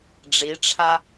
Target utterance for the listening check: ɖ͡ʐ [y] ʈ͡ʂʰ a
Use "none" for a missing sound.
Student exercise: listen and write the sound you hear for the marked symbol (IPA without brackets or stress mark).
i